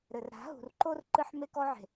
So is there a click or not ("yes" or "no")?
yes